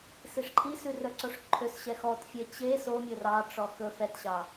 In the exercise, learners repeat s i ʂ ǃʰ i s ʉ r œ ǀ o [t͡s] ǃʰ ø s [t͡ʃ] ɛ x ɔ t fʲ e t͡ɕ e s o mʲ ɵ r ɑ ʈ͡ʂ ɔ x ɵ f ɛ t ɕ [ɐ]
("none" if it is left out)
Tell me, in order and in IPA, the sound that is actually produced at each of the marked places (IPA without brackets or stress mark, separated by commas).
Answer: ʂ, ɕ, ɑ